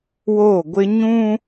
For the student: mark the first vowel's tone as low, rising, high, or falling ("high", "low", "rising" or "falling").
falling